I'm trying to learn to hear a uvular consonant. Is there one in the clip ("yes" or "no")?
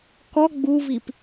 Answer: no